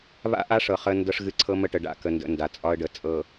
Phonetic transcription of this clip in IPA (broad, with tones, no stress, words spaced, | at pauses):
βa̰˦ʔa˦ʂɤ˨ χə˦ndɤ˦ʂɣɨ˦ ǀʰɤ˦mə˦ʈə˨ɖa̰˦ kə˨ndə̰˨ nda˨t͡sʼɒ˦ə̯ɖə˨ t͡sʼɤ˨